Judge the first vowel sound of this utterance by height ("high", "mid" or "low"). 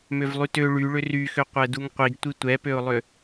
mid